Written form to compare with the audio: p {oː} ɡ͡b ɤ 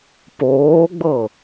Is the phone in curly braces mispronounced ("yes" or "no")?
no